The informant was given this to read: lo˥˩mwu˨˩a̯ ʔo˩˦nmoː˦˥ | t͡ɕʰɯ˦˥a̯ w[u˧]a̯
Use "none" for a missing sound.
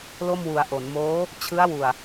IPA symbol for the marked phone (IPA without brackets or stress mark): u˨˩